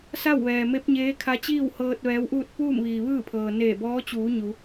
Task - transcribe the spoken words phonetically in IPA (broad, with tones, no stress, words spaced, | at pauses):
sa˥˨wʋɛː˩ me˧˥p̚ɲeː˧˥kʰa˧˥t͡ɕiː˥˨w hɤː˧t̚ ʋɛː˧˥wʔuː˥˨t̚ puː˥˨mʋiː˩ʋɯː˥˨pʰɤː˩ neː˧˩bɔː˧˥t͡ɕuː˩˧ ɲu˩˧